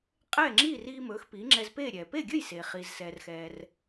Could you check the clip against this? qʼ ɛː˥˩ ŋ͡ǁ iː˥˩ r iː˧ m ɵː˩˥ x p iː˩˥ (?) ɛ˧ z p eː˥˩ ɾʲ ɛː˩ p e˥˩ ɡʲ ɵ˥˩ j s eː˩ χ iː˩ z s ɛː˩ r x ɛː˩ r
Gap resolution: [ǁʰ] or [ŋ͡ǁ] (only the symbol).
ŋ͡ǁ